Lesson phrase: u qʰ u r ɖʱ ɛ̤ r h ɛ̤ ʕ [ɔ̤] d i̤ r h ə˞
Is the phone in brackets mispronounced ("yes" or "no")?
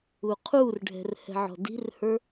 no